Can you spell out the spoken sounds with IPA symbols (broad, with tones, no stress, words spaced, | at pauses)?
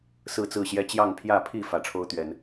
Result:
sɹ̩˥˨t͡sɹ̩˥˨ɕjɛ˦ t͡ɕjɑ˥˨ŋpʰjä˥˨ pʰi˥˨ fä˨˦ʈ͡ʂʰo˦ʊ̯t̪ɥɛ˨˦n